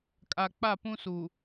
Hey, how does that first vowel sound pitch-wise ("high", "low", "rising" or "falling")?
low